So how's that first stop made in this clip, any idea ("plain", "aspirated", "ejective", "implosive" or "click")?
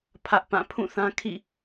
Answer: aspirated